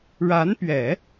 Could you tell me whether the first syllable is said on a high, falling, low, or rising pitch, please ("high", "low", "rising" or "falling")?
rising